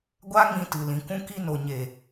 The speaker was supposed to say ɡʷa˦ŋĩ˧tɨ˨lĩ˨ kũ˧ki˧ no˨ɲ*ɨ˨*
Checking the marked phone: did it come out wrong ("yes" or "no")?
yes